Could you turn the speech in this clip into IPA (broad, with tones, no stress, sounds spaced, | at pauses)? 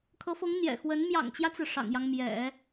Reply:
kʰ ɤ˧˥ f ɤ˧˥ ŋ n̪ j ɛ̰˨˩ x w ə˧˥ n m j ɑ̰˨˩ ŋ t͡ɕ j ä˦ t͡s ɹ̩˩ ʂ ɑ̰˨˩ ŋ j ɑ˦ ŋ m j ɛ̰˨˩˦